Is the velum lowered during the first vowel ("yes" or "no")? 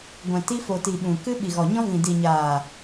yes